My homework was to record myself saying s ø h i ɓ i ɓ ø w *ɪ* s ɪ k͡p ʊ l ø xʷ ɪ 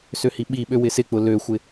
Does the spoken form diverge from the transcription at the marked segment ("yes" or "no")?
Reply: no